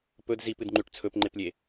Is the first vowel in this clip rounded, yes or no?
yes